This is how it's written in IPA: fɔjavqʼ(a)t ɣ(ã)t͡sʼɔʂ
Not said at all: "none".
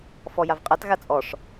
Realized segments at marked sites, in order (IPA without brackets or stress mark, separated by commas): a, a